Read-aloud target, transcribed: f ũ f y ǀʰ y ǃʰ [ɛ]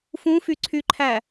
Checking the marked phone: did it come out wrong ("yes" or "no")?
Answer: yes